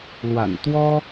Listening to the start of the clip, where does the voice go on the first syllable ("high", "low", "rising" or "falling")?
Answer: low